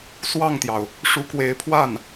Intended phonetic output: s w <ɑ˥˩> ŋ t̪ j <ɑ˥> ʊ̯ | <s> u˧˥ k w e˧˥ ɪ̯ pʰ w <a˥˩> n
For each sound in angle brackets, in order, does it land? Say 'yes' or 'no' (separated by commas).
yes, no, no, yes